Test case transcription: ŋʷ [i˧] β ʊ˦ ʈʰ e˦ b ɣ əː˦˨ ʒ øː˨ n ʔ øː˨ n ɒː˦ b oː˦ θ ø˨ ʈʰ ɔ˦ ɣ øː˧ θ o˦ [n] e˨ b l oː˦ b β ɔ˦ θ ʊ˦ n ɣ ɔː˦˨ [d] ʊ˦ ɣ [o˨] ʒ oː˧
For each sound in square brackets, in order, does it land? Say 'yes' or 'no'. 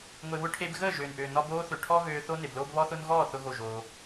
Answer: no, yes, no, no

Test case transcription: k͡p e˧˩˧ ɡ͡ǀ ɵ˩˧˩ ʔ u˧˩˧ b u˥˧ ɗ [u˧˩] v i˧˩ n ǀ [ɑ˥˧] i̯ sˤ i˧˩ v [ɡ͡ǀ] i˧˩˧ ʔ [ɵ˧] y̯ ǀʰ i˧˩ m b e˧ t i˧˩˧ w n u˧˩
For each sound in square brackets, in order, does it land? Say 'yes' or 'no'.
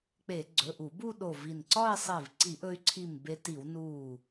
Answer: no, no, no, yes

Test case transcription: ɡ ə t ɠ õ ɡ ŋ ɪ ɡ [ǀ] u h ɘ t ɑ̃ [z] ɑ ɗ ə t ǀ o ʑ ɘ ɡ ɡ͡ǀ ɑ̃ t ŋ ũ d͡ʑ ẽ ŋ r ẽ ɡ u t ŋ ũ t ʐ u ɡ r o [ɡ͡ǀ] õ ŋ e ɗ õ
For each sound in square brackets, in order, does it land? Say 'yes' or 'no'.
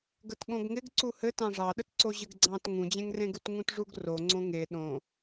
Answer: yes, no, no

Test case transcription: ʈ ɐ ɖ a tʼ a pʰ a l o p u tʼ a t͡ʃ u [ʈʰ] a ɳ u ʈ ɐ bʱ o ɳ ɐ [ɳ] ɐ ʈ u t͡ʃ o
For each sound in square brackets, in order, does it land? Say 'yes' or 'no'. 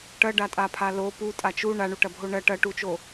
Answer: no, no

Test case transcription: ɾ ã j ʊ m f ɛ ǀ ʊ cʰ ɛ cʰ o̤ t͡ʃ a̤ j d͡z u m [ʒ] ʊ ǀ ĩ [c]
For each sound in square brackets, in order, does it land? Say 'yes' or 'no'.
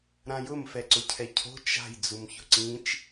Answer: no, no

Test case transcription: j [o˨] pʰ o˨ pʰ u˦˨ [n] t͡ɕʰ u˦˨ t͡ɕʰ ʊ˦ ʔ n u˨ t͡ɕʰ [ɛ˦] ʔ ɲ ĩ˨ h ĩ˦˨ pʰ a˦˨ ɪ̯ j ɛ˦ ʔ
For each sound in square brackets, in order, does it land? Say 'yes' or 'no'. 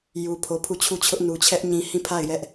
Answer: no, no, yes

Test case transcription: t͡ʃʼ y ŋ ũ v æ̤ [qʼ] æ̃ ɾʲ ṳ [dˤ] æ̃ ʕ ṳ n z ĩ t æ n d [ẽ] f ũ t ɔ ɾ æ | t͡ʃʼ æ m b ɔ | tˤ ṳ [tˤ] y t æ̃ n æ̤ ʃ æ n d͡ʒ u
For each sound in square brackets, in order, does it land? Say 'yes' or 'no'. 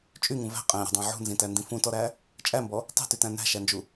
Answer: yes, yes, no, no

